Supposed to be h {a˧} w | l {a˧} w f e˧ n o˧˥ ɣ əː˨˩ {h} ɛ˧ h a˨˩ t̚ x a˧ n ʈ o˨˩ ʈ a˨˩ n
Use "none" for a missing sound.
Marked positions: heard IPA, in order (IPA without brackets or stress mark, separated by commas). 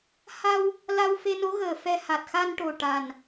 a˧, a˧, f